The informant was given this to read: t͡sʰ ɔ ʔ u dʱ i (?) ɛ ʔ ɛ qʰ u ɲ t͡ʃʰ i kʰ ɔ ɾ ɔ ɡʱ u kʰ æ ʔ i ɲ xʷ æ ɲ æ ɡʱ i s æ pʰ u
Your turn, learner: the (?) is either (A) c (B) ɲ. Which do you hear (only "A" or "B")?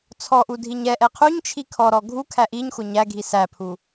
B